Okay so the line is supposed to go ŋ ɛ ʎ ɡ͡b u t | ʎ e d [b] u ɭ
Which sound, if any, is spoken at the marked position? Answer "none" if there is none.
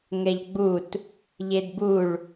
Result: b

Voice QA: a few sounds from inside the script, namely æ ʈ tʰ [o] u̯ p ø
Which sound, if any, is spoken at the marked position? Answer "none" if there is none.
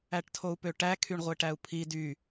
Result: o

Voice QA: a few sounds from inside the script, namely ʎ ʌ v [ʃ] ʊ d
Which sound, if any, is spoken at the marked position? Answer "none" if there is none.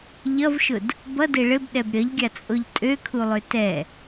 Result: ʃ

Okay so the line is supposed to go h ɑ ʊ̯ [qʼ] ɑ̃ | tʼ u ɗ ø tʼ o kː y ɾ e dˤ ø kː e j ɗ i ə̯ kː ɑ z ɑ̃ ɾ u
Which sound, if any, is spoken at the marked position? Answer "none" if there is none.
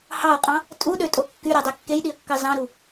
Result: qʼ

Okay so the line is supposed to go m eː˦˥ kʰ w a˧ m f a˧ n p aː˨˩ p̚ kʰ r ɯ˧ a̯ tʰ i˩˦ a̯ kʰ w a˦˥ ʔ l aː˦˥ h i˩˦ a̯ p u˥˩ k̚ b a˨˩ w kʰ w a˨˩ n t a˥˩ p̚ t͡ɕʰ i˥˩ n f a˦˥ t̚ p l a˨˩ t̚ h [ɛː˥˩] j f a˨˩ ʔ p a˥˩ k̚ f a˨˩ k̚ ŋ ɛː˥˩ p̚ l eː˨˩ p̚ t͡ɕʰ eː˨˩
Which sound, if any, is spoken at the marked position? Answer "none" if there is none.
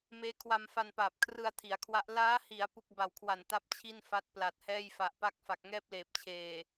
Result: ɛː˥˩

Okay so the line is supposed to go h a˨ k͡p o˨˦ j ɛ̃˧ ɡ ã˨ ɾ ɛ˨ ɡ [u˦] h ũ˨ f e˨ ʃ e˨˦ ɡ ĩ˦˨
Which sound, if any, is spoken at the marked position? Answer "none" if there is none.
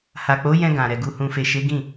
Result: u˨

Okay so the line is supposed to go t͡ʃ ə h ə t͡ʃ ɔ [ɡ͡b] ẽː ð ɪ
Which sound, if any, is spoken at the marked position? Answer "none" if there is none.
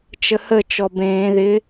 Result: b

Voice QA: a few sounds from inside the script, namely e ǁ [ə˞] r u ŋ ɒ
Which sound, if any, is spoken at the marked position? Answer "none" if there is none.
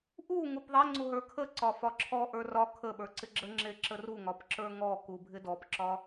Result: ə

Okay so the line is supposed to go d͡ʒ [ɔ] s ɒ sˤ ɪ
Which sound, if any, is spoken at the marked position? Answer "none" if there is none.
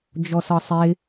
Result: ɔ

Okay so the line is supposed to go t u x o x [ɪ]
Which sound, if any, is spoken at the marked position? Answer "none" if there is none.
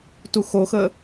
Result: ə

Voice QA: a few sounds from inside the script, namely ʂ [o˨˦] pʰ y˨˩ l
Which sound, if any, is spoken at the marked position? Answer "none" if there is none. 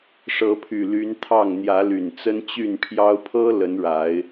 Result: ɤ˨˦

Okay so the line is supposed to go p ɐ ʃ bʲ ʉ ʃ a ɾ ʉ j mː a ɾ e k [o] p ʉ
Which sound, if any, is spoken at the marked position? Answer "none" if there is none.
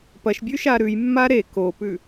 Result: o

